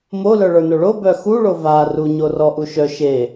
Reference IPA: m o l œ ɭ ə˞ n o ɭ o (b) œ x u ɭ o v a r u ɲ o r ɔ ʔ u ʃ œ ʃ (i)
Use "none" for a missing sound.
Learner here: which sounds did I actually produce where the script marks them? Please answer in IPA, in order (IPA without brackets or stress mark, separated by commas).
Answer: b, e